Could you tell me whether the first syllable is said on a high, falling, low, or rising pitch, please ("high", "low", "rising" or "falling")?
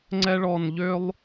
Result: high